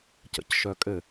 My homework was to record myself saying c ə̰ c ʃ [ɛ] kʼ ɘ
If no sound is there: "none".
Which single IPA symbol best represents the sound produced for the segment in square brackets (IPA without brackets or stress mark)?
œ